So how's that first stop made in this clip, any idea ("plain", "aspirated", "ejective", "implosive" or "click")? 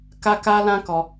plain